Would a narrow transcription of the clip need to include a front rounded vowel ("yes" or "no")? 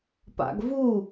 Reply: no